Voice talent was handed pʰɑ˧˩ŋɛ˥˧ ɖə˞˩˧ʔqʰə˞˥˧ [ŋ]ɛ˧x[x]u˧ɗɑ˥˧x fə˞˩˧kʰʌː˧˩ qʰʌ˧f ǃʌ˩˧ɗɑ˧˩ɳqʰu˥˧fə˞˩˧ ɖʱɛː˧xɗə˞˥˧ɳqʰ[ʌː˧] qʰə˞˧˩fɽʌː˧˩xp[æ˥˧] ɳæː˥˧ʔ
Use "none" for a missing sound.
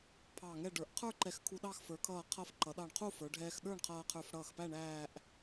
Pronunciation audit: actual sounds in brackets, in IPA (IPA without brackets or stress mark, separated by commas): ǃ, kʰ, ʌː˧, æ˥˧